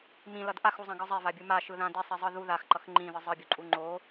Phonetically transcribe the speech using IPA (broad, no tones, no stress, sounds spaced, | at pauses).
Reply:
m ĩ l ʌ d ʔ a x u zˤ ã ɡ ɯ zˤ e v a bʲ u m a ʃ ɯ ð ã d i sˤ i zˤ ɯ ð u ð a x ǃ ʌ x ŋ͡ǃ ĩ ð ɯ zˤ ɯ bʲ u ǃʼ u ŋ͡ǃ o